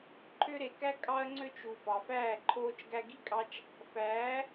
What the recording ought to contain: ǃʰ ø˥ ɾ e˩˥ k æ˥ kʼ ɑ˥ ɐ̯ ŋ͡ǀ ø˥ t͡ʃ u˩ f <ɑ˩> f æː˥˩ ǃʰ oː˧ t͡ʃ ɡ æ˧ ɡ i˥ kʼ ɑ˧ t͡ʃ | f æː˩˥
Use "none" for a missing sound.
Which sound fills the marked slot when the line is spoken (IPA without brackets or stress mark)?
ɑ˩